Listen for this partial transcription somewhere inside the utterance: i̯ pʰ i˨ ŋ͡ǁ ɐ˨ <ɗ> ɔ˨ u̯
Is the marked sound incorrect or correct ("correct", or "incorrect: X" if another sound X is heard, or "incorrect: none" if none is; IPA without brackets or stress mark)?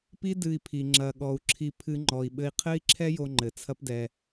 incorrect: ɠ